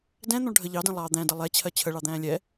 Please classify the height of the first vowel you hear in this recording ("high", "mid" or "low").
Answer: mid